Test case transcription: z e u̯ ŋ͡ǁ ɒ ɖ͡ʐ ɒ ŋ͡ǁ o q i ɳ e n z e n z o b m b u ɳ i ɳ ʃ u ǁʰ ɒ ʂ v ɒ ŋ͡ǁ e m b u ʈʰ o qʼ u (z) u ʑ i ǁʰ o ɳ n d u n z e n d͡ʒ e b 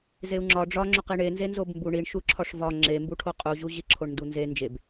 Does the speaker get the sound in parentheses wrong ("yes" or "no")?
yes